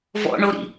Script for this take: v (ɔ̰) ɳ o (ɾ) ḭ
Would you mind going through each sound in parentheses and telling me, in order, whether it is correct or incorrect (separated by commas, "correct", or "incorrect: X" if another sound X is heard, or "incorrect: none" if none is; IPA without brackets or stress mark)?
correct, correct